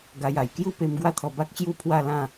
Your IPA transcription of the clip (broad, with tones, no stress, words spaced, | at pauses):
ɡa˧ja˨˩j kju˥˧pe˧m ɡwa˦t̪ʰɔ˧ba˦k̚t͡ɕju˥˧ pʰwa˥˧lã˥˧